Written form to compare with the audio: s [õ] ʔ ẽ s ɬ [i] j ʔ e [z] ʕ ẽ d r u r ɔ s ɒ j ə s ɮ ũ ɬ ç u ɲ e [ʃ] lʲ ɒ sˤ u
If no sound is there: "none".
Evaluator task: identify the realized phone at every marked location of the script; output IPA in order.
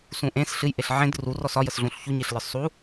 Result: ũ, ɨ, ɬ, ɬ

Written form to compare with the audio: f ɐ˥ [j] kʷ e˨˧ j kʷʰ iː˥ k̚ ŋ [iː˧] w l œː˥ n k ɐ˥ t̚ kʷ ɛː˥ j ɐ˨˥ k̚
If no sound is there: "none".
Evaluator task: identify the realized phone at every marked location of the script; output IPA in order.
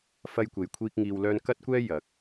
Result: j, iː˧

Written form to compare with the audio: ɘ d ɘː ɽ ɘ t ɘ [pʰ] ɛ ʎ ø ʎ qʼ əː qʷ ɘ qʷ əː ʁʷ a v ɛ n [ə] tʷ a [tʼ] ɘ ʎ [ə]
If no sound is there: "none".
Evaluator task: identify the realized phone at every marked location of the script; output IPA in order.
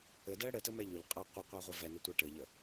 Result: m, ə, ʈ, ə

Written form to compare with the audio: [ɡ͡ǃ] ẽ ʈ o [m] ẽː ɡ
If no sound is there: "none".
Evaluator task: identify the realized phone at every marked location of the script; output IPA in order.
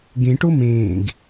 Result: ɡ, m

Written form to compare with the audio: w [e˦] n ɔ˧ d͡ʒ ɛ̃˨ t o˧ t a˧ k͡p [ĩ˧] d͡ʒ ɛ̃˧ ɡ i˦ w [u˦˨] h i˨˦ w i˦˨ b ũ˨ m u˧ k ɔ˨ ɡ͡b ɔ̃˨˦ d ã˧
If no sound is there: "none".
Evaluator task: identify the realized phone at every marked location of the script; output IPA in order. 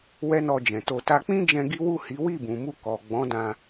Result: ɛ˦, ĩ˦, u˦˨

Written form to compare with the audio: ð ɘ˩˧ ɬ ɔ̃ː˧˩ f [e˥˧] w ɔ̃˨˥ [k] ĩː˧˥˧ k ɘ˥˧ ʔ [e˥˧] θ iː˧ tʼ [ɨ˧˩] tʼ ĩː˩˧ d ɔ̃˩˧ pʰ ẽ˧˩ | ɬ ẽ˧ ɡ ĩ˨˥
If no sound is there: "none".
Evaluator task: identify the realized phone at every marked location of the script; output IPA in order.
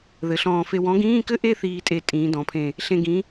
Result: e˧, ɡ, e˥˧, e˧˩

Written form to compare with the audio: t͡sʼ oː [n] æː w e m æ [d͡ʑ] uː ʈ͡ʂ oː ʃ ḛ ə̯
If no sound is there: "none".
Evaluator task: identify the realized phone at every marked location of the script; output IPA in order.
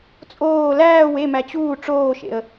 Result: l, t͡ɕ

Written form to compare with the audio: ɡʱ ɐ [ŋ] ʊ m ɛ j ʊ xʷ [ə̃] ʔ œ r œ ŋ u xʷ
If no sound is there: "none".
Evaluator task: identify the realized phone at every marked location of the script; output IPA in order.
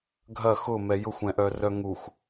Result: x, ɛ̃

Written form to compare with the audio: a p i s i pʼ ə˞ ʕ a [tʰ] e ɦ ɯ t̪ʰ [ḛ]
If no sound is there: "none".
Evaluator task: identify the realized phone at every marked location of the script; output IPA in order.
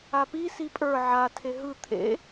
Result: tʰ, ḛ

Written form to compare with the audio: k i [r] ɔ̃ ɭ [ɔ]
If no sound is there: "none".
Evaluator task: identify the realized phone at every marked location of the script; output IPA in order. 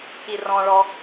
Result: r, ɔ

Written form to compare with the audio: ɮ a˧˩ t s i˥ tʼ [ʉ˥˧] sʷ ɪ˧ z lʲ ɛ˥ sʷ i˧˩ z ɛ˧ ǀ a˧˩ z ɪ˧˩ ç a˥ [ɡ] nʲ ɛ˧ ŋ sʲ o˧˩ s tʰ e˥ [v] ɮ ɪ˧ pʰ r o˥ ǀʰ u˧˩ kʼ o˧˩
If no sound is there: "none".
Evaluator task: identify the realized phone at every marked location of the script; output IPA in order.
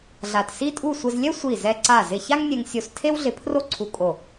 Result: u˥˧, ŋ, w

